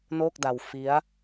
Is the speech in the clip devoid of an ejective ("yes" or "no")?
yes